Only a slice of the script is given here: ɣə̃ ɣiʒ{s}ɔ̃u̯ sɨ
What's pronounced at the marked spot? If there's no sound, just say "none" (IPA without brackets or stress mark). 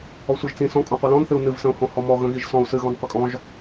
s